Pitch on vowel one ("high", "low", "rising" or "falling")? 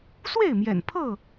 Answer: falling